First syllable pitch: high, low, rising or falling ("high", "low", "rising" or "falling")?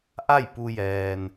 falling